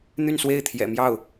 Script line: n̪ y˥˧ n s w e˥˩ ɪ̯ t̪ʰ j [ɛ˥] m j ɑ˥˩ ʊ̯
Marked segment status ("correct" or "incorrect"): incorrect